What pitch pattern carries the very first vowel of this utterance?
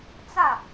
falling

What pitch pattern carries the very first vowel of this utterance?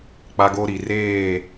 high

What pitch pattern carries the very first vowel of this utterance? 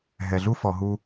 low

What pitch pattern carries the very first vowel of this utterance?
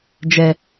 low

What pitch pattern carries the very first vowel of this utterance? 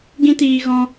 high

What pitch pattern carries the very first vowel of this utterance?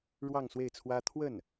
falling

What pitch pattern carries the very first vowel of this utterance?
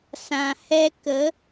low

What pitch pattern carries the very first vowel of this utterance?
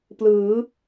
rising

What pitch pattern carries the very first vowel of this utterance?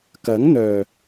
rising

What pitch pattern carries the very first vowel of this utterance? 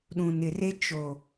low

